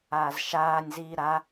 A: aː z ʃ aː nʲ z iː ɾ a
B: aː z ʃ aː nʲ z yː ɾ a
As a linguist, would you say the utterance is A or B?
A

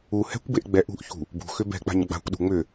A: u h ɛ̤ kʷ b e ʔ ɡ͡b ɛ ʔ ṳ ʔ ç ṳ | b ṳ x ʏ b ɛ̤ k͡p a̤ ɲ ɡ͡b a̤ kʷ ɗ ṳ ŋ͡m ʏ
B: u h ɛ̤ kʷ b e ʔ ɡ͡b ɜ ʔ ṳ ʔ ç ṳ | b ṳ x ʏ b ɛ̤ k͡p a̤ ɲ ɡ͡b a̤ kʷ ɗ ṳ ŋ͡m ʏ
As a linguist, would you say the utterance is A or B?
A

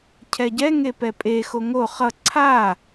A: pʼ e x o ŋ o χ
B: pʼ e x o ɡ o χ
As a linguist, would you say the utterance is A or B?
A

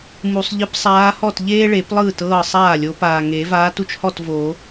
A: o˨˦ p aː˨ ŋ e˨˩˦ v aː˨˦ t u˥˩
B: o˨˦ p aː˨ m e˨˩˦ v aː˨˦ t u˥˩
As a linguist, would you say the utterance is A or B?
A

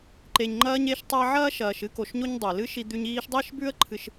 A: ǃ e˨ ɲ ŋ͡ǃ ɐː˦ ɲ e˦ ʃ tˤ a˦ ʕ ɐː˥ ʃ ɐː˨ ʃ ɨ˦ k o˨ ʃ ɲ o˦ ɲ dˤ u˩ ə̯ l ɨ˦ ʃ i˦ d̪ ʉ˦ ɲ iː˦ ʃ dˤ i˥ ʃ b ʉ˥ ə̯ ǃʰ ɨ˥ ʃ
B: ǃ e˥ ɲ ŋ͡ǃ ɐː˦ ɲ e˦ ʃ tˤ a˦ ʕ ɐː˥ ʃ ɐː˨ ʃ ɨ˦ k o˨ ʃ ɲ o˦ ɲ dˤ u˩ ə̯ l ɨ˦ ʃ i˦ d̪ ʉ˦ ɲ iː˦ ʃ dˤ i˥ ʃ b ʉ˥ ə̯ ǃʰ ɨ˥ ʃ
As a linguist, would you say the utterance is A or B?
A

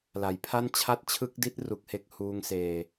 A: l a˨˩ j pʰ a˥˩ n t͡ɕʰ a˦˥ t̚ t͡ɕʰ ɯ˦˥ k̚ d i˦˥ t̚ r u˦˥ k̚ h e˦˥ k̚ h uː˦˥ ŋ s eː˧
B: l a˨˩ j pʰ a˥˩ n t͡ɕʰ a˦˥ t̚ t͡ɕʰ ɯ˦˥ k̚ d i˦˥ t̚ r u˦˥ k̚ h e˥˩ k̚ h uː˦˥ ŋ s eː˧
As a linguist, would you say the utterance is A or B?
B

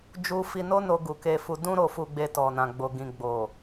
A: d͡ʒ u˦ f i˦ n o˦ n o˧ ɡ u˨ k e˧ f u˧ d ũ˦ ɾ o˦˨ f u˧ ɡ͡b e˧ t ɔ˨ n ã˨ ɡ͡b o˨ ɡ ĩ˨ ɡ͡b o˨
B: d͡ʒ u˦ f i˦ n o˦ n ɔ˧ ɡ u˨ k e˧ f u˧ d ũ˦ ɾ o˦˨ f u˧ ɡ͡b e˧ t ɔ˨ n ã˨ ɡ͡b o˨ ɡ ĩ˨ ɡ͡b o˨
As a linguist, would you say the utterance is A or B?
A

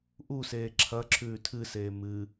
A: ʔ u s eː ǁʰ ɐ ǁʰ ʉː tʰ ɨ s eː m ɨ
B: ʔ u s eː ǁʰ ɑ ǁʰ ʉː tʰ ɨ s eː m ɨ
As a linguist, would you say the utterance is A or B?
A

